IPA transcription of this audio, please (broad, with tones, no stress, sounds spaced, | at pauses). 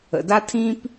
ə̰˨ d a˥ tʰ ĩ˥ p